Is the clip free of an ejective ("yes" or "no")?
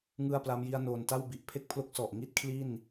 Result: yes